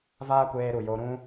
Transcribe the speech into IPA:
vaː˦kʷeː˧ɾu˨jo˧ ɾũ˦

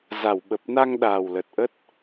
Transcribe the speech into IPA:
za˧˩wɓə˨˩p̚na˧ŋ ɗaː˨˩wlə˨˩t̚ʔə˦˥t̚

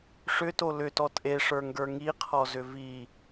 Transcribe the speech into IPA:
ʂʏto lʏtɔ tʼeʂə˞ŋɡə˞ ŋiqʰɔzʏ vi

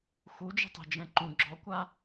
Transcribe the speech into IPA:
xud͡ʒə̤tˤe̤d͡ʒɛ̃ ǃũ ɡ͡ǁɔkʷa

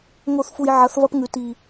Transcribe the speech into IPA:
ŋo˦˨θfu˧j ʕɐ˨˦θvɐ˦p ŋʉ˨ ti˨

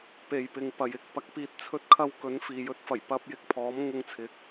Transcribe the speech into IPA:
pe˨jpɪ˨ŋpɐ˨jɪ˨k̚ pɐ˨˥k̚piː˨t̚t͡sʰɵ˧t̚kʰɐ˧w kɵ˨˥nfiː˨jɵ˧t̚ fɐ˨˩jpɐ˧p̚ jɪ˧k̚pʰɔː˨˥m ŋʊ˧ŋt͡sʰɪ˨˥k̚

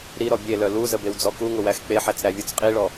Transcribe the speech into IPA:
ɾiɾɔ bʲelœ luzə bewd͡zɔkuŋʊ wæxk͡peħæt͡s ɾævʲut͡sqʼiɭɔ

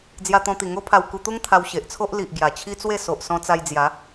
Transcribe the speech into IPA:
d͡zja˧t̪ɔ̃˧t̪i˨˩ ŋo˦pʰa˧wku˧t̪u˦ŋ t̪ʰa˧wɕe˨ʔt͡sʰo˦ʔ li˨ʔ ɡja˨˩t͡ɕʰi˦t͡swe˥˧ so˨ʔ sɔ̃˧t͡sa˧jd͡zja˨˦

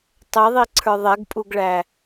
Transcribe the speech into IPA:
tˤɛðˤiǀʰə˞ ðˤɛɡpʼuɡɭæ

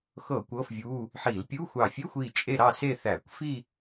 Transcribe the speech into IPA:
xɤ˧˩˧ kʷɤː˧˥˧fvʲuː˧˥˧ | ħi˧˩˧l pʲu˧˥˧xʷɑ˧˩ fʲɘ˧˥˧xʷiː˧˩ t͡ʃʼe˥˧ɾɑ˥˧ se˥˧θæː˧˩˧kʷ fi˥˧

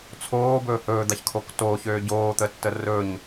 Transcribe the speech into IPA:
t͡sʰoːbɵː hɵːd̪açkʰok toːçøː ɟoːt̪ətːə rɵɲ

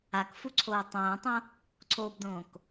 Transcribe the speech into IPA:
akfuǀʰoː tˤõːtˤõ | ǀʰoːbdõːk

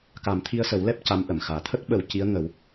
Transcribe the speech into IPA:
ka˨˩˦mt̪ʰi˧ə̯sə˨˩˦wlɛ˦˥p̚ ca˧˥mʔə˨˩˨mxaː˨˩ t̪ʰə˦˥k̚ɓə˨˩˦w ci˧˥ə̯ŋə˨˩˦w

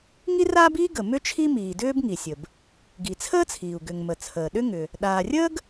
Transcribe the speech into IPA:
ŋi˥raː˥biː˥ ɡə˩ mʏ˥t͡ʃʰi˥miː˩dʏː˥b ŋi˩sʲə˩b | ɡi˩t͡sʰəː˥t͡sʰiː˩u̯ ɡʏ˩ŋ mə˩t͡sʰəː˩ ɗʏ˥ŋʏ˩ | ɗaː˩rʲəː˥ɡ

